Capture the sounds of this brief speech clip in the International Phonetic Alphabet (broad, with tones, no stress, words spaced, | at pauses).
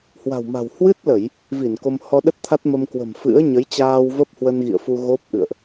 hwa̤˨˩wma̤˨˩w hwɨ˦˥t̚lə˧˩˨j | vi˧˩n ko˧m hɔ˧ɗə˦˥t̚ t̪ʰa˦˥t̚mə˧mkwə̤˨˩m fɨ̰˧˥ə̯ɲə˨˦jt͡ɕaː˧w və˦˥p̚hwə˧nɣḭ˧˨ə̯fu˧ ɣo˦˥p̚ʔɨ̰˧˨ə̯ʔ